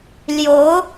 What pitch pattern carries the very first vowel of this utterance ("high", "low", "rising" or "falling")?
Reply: rising